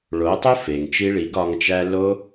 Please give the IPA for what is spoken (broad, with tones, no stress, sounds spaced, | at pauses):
ɭ o˨˦ tˤ o˦ f e˨ ŋ t͡ʃ i˦ ɭ i˨˦ ɡ ɒ˧ ŋ t͡ʃ æ˧ l o˦